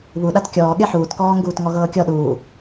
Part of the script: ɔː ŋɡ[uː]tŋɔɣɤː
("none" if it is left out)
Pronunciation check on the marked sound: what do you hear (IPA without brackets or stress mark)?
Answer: uː